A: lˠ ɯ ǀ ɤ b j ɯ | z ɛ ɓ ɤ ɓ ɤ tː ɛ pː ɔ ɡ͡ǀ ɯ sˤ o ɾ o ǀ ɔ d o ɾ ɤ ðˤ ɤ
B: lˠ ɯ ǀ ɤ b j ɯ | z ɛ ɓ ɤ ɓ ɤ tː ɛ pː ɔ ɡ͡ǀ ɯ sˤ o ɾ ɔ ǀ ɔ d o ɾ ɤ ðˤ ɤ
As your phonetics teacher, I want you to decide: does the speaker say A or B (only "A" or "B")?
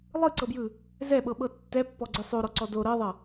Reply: B